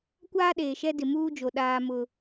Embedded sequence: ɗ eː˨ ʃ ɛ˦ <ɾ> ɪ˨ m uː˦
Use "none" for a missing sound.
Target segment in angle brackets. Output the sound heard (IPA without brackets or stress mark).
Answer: d